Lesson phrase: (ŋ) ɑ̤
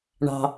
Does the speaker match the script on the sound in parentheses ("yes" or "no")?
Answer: no